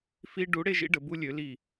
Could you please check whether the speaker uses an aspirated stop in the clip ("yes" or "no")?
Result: no